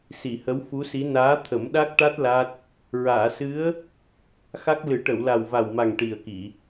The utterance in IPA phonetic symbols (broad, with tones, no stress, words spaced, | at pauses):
si˨˩˨hə˧˥wfu˧˥si˧˥ naː˧˥t̪ʰə˨˩˦mɗa˦˥k̚ʈa˦˥t̚ la˦˥t̚ | ɹaː˨˩˨sɨ˧˥ə̯ | xa˦˥k̚lɨ˨˩˦ ʈə˨˩˨wla˨˩wva˨˩wma˨˩ŋ ʈi˨˩ə̯ki˨˩˨